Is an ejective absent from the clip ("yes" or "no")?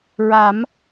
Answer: yes